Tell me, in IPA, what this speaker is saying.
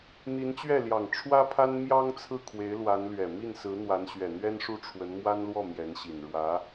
n̪ i˧˥ n t͡ɕ ɥ ɛ˥˩ l j ɑ˨˩ ŋ ʈ͡ʂʰ w ä˥ pʰ a˥ n m j ɑ˥ ŋ t͡sʰ ɹ̩˥˩ kʰ w e˧˥ ɪ̯ l w a˧˥ n l ɥ ɛ˨˩ m i˥˩ n s ɹ̩˧˥ n̪ w a˧˥ n ɕ ɥ ɛ˨˩ n̪ ɥ ɛ˥ n ʂ u˥˩ ʈ͡ʂʰ w ə˧˥ n m w a˥ n l w ɔ˥˩ m j ɛ˧˥ n ɕ i˨˩ n ɻ w ä˧˥

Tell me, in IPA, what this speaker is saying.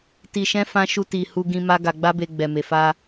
t i˧ ʃ ɛ̃˦ f ã˧ ʃ u˧ t i˨ h u˧ ɡ ĩ˧ m a˦ ɡ a˧ ɡ͡b a˦ b e˧ ɡ͡b ɛ˨ m e˨ f a˧

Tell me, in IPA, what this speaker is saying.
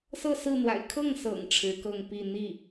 s ɤ˥˧ s ɹ̩˥˩ n̪ w a̰˨˩ ɪ̯ kʰ ɤ˥˩ ŋ s ɤ̰˨˩ ŋ ʈ͡ʂʰ ɻ̩˧˥ k ɤ˥˧ ŋ p i˥˧ n̪ i˥˩

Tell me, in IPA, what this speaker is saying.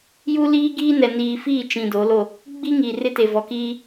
j u˦ l iː˦ ɡ iː˦ n ɛ˨ n iː˨ f iː˦˨ t͡ʃ ĩ˨ d o˨˦ l o˦˨ | ɡ͡b i˦ ŋ iː˨ r ɪ˦ t e˨ v ɔ˨ k iː˦

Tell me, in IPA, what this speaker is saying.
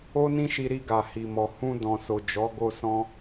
o˦ n ĩ˦ ʃ i˧ ɾ i˧ ɡ a˨ h i˨ m ɔ˨ h ũ˧ d ɔ̃˨ s o˨ d͡ʒ ɔ˨˦ ɡ o˧ s ɔ̃˧

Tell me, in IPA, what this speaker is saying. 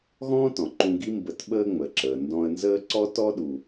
ɣ ɔ̃ː˥ t ɔ̃˩ ǃ ũ˧ ɡ i˥ m b ə˧ t ɓ əː˥ ŋ͡m ə˩ ǁ əː˩ n d ɔ̃˧ ə̯ n z əː˥ ǀ ɔ˥ t ɔ˥ ɗ u˩

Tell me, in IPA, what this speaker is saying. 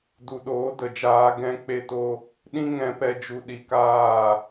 d u˨ ɗ oː˨˦ d ə˨ d͡ʒ aː˧ ɡ ɛ̃˦ k͡p e˦ t o˦ | ɗ ĩ˦ ŋ ɛ̃˧ p ɛ˧ d͡ʒ u˧ ɗ i˧ k aː˦˨

